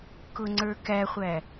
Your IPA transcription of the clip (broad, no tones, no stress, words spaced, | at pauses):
kʊŋ͡ǀə˞kæχʷæ